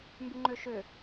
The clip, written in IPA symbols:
m b y ŋ͡ǃ ø ʃ ø

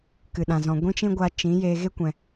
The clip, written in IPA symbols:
k ɨ˨ ɗ ã˨ z ɔ̃˨ ɡʷ ĩ˦ t͡ʃ ĩ˦ ɡʷ a˧ t͡ʃ ĩ˨˦ j eː˧ ɣ e˦ kʷ ɛ̃˨

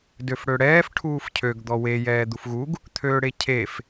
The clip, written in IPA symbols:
d ø f ɽ ø ɽ ɛː f ʈʰ uː f cʰ ø ɡ d̪ ɔ w e j ɛː d̪ u f ɣ u ɡ | t̪ʰ øː ɽ e cʰ e f

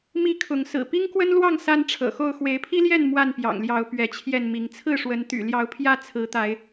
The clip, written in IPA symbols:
m i˥˨ kʰ ʊ˨˦ ŋ s ɹ̩˨˩ p i˦ ŋ k w ə˦ n l w ɑ˥˨ ŋ s a˦ n ʈ͡ʂʰ ɤ̰˨˩ x o˥˨ ʊ̯ x w e˨˦ ɪ̯ pʰ i˦ l j ɛ˥˨ n m w a˥˨ n p j ɑ̰˨˩ ŋ l j ɑ˨˦ ʊ̯ p ɥ ɛ˨˦ t͡ɕʰ j ɛ˥˨ n m i˨˦ ŋ t͡sʰ ɹ̩˥˨ ʂ w ə˨˦ n t̪ y̰˨˩ l j ɑ˨˦ ʊ̯ pʰ j ä˥˨ t͡sʰ ɹ̩˨˦ t̪ a˨˦ ɪ̯

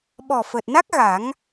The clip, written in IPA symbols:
ɓ ɔ˨˩ f əː˨˩ t̚ n a˦˥ k̚ ɣ a˨˩˦ ŋ

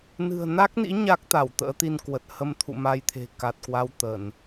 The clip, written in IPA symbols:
n ɨ̤˨˩ ə̯ n a˦˥ k̚ n ḭ˧˥ ɲ a˦˥ k̚ t̪ a˧˩ w t̪ ə̰ː˧˥ t̪ i˧ n k w ə˨˩ t̚ h ə˧ m t̪ʰ ṵ˧˨ m a˧ j t̪ʰ e̤˨˩ k a˨˩ t̚ k w a˧ w t̪ ə˧˩˨ n

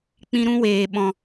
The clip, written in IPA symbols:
k͡p ĩ˦ ɾ ũ˦ w eː˨ ɓ ɔ̃˨

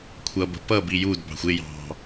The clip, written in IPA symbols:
kʷʰ ʌ b ə̤ p ʌ b i j u d b ɑ̤ xʷ ɪ j ɑ̤

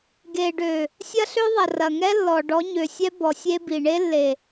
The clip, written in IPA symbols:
ɡ e˨ ɖ ø˨ | sʲ ɐ˦ ɬ ø˦ ðˤ ɐ˨ r ɐ˨ ŋ ɛ˦ lː ɔ˨ ɖ ɔ˨˦ ɲ ø˨ sʲ ɛ˦ b ɔ˨ sʲ e˦ b i˨ ɳ e˦ lː e˨

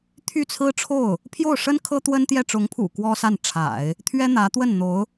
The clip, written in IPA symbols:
t̪ʰ y˥˩ t͡sʰ ɹ̩˥ ʈ͡ʂʰ o˥˩ ʊ̯ | pʰ j o˥˩ ʊ̯ ʂ ə˥ n kʰ ɤ˥ t̪ w ə˥ n t̪ j ɛ˥˩ ʈ͡ʂ ʊ˧˥ ŋ pʰ ṵ˨˩ k w ɔ˥ s a˥˩ n ʈ͡ʂʰ a̰˨˩˦ ɪ̯ | t̪ʰ ɥ ɛ˥ n̪ ä˧˥ t̪ w ə˥˩ n n̪ o˧˥ ʊ̯

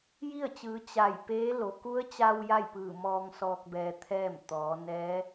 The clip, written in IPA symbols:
j i˥˨ ə̯ t͡ɕ ɯː˩˧ t͡ɕ a˧˩ j p eː˧˥ l o˩ k u˧˥ ə̯ t͡ɕ a˧ w j a˥˨ j p ɯː˧˩ m ɔː˧ ŋ s ɔː˧ k̚ b ɛː˧ t̪ʰ ɛː˥˨ m t̪ ɔː˩˧ n ɛː˧˥

